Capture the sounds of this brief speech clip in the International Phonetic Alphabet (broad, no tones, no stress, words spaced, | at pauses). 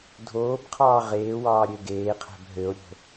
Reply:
dʱoːbqʰɑː ʁeːwɑːɾʲø ɡeːqʰæ̤b ɦøo̯ɾʲo̤